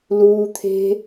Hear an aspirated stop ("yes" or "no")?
yes